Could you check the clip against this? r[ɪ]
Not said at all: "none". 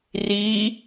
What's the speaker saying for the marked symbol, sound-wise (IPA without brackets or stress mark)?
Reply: i